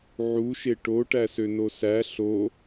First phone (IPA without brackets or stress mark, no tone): ʕ